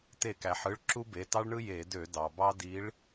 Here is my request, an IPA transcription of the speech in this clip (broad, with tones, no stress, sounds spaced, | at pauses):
t e˧˩˧ k æ˩ ħ ɯ˩˧˩ ɭ ǁ u˦ b e˩˧˩ t ɑ˦ ɭ ɳ ɯ˦ j e˧˩˧ d ø˧˩˧ d ɑ˩ b ɑ˦ d i˨˦ ɭ